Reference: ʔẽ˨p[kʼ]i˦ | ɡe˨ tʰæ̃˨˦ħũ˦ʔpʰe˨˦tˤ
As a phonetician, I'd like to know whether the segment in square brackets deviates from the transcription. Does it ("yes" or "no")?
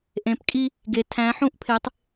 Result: no